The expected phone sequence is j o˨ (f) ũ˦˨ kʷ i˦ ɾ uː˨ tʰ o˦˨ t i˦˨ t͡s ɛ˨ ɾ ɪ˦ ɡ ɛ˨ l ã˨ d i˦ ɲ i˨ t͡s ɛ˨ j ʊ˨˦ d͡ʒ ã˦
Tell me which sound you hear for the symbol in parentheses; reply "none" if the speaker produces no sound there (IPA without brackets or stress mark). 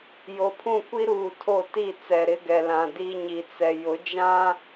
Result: pʰ